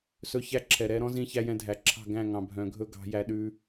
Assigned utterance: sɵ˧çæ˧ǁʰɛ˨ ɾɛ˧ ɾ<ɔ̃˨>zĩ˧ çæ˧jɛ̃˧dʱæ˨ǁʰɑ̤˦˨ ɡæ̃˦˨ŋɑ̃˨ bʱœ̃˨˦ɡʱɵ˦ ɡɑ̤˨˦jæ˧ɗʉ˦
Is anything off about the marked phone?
yes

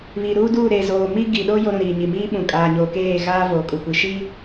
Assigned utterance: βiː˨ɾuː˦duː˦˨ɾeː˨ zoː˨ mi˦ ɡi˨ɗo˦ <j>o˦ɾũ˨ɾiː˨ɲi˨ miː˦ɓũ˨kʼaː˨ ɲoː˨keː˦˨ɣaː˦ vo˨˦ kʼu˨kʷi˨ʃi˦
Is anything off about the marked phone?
no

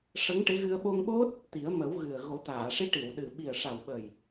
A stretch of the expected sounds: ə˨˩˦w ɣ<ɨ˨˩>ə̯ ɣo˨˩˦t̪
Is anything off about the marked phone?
no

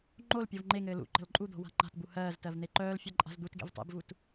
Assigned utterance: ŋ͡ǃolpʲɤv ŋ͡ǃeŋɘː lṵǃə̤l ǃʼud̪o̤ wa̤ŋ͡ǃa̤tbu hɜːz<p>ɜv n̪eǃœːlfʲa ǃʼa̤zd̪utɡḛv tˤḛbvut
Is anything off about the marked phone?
yes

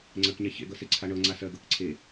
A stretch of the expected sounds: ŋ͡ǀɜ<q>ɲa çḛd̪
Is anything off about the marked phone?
yes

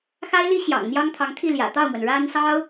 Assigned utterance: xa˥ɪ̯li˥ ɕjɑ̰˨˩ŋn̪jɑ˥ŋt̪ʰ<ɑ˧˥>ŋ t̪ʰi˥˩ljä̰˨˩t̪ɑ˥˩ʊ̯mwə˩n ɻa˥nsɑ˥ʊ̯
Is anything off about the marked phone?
no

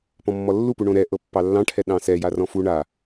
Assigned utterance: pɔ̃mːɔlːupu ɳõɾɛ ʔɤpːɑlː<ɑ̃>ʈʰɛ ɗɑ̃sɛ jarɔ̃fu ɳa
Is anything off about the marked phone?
no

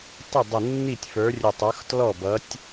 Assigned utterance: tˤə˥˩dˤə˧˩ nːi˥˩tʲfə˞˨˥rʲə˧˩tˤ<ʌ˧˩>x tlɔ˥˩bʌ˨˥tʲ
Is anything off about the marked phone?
yes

